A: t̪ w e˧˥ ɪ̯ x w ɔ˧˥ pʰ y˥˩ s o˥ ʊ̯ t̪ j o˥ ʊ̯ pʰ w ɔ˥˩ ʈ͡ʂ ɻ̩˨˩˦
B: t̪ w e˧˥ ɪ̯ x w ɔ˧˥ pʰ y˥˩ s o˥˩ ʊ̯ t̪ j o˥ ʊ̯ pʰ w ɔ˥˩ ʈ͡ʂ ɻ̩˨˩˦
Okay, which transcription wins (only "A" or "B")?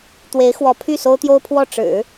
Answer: A